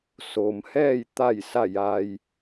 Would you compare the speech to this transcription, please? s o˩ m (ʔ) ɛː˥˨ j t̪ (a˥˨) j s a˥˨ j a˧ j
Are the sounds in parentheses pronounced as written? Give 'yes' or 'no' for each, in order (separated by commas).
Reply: no, yes